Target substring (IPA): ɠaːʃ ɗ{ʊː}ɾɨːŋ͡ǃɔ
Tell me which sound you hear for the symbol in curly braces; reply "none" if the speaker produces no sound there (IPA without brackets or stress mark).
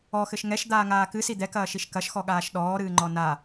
ɔː